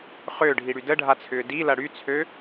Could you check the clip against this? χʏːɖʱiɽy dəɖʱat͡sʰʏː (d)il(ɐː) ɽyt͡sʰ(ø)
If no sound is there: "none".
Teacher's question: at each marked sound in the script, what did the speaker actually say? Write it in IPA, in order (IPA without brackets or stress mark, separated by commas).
d, ɐ, ø